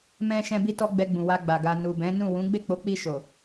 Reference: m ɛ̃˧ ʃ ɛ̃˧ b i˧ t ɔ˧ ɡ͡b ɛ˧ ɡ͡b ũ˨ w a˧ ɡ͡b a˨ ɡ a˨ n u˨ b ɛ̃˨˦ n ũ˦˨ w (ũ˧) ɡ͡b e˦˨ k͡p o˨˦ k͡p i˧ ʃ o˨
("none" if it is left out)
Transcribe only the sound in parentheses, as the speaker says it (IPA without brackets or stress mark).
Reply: ũ˨˦